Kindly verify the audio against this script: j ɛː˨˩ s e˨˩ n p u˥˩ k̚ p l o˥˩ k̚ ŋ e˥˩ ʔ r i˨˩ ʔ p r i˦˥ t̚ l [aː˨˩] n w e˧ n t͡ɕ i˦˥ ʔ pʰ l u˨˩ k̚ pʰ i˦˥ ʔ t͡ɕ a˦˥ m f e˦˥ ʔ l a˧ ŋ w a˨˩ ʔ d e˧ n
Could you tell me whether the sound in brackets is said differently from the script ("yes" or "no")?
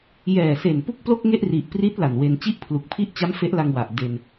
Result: yes